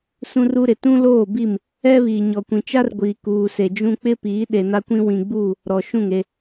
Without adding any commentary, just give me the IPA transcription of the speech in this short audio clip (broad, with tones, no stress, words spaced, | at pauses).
sũ˦ru˦ɾɪ˨ tũ˦loː˦˨bi˦˨m | ɛ˦βi˨ ɲɔ˨kʷĩ˨t͡ʃa˦rɡʷiː˨ kuː˨se˨d͡ʒũ˦ k͡pɪ˦piː˨˦ ɗe˨na˦kʷĩ˦ wĩ˨ɡ͡buː˦˨ | ɾɔ˨ʃũ˦˨ŋe˦